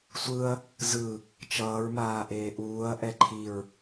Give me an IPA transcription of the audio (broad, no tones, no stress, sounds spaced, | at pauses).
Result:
sʷ ɯ ɐ̯ | z ɯ | t͡ʃ ʌː ɹ m aː ʔ eː ʔ uː ɐ̯ ʔ ɛ ǃʰ i ɹ